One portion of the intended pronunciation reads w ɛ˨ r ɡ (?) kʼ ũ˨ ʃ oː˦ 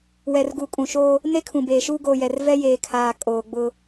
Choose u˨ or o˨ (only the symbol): u˨